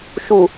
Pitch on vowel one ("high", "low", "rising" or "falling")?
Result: low